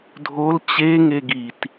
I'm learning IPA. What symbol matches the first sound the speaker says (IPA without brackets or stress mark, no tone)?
dʱ